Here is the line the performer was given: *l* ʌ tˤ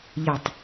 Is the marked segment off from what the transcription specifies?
yes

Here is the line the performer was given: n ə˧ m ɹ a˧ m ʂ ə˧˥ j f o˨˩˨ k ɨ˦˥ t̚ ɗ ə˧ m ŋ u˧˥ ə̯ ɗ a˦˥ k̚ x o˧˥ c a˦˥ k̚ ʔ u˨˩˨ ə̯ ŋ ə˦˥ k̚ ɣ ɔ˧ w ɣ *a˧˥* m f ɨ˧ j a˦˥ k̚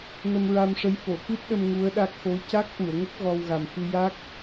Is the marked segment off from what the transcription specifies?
yes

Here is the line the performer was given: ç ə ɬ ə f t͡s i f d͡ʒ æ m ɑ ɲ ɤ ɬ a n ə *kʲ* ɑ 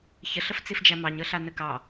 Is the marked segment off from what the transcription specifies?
yes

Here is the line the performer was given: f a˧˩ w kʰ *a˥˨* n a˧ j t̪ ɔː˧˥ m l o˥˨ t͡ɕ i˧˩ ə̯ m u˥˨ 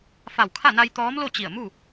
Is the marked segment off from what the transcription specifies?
no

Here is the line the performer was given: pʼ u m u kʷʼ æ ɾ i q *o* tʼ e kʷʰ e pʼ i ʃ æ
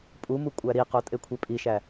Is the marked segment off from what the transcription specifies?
no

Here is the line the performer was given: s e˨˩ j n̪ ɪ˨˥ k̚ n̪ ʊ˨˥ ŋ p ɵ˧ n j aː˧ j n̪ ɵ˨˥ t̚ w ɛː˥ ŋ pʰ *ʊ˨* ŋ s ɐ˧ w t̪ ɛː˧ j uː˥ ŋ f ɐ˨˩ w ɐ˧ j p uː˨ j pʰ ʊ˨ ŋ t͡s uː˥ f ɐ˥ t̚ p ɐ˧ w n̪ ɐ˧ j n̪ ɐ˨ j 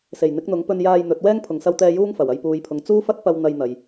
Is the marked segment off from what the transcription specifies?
no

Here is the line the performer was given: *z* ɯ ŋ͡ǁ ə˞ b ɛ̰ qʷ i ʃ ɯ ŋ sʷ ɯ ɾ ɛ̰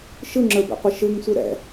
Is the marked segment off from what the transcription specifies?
yes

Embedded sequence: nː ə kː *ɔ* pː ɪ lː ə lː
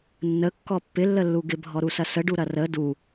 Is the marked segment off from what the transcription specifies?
no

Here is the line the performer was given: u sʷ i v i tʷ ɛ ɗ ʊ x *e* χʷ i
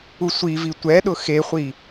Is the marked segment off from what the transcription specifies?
no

